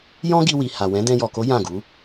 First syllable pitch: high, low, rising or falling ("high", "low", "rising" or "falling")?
high